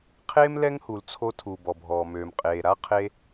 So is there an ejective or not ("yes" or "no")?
yes